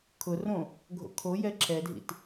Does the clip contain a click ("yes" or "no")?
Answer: yes